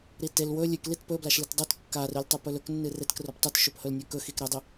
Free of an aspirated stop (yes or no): yes